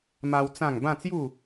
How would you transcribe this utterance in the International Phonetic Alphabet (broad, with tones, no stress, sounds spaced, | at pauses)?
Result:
m a˦ w t͡s ã˥˧ ŋ b ã˥˧ t͡s j u˥˧